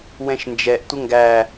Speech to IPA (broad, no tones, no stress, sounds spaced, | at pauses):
w ɛ̃ ʃ n d͡ʒ ɛ ʔ tʷ ə ŋ ɡ æ